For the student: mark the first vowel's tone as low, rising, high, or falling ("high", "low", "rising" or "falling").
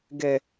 high